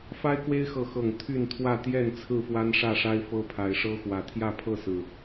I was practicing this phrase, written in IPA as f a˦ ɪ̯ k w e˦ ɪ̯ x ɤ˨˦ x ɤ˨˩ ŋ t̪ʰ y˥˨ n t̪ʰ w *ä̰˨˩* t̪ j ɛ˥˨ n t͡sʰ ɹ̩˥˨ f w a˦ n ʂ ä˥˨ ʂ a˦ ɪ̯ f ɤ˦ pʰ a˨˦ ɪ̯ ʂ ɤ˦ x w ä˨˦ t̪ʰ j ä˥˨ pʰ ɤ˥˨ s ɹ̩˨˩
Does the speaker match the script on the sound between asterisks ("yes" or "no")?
no